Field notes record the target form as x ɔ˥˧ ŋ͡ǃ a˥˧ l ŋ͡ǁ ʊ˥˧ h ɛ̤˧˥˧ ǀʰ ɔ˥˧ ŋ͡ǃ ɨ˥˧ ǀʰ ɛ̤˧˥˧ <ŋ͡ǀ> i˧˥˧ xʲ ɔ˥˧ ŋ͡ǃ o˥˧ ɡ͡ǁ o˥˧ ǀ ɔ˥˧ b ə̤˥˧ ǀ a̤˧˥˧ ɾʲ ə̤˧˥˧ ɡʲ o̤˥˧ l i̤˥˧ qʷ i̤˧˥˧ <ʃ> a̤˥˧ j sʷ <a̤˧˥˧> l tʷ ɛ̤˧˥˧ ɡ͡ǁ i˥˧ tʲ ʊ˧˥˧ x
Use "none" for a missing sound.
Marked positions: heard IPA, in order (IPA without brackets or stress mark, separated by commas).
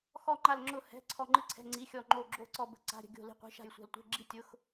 ŋ͡ǀ, ʃ, a̤˥˧